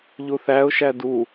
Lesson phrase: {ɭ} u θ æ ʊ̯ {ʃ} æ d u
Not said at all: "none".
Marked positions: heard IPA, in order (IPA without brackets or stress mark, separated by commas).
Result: ʎ, ʃ